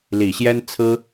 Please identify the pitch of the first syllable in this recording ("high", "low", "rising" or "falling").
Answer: low